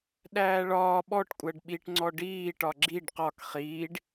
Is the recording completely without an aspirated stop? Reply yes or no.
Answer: yes